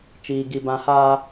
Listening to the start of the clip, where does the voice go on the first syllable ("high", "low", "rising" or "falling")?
high